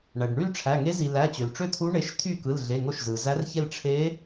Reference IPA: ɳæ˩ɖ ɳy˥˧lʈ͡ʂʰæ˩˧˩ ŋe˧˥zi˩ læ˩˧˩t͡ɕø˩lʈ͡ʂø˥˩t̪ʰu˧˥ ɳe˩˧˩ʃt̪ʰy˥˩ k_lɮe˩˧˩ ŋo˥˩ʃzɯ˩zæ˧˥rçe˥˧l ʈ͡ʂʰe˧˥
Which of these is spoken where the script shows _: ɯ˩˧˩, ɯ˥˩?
ɯ˩˧˩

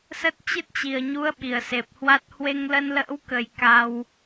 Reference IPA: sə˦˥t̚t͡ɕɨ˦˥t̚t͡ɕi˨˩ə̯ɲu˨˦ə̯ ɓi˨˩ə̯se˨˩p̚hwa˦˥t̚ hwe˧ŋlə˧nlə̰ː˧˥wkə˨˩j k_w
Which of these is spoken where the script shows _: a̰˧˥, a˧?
a˧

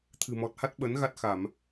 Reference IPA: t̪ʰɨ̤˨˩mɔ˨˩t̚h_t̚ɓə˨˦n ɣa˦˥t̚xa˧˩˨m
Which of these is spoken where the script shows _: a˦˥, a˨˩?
a˦˥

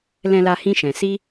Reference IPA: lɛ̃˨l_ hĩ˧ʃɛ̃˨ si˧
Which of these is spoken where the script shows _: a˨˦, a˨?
a˨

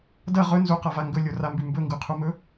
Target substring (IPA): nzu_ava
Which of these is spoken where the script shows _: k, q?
q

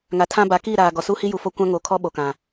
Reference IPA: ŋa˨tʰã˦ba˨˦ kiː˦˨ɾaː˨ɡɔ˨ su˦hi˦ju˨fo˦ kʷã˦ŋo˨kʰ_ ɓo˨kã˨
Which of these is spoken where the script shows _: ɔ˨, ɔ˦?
ɔ˦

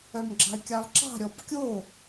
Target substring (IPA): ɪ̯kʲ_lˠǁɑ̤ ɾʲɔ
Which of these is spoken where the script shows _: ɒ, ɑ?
ɑ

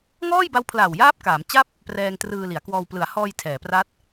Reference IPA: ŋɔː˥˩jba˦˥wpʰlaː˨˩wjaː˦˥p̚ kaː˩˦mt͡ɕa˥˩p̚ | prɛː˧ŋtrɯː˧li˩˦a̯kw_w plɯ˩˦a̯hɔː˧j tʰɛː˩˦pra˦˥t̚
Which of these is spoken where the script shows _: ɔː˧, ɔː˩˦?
ɔː˧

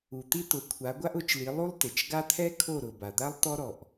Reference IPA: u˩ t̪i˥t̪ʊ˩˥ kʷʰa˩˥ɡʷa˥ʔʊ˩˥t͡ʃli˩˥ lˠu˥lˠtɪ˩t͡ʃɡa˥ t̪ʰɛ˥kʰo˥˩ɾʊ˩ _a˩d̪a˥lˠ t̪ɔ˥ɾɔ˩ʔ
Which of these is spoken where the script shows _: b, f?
b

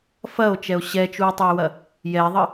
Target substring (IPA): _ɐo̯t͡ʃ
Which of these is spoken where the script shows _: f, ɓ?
f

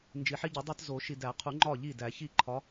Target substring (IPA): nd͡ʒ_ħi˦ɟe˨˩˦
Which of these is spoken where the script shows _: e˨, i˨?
i˨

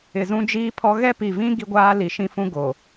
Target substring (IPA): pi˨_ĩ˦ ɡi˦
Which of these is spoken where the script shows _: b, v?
v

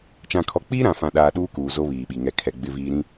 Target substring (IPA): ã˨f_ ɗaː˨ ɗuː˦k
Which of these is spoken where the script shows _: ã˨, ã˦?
ã˨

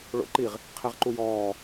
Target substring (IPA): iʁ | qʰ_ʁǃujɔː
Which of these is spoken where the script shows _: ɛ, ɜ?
ɛ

